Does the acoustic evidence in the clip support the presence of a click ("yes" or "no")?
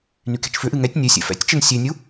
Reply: no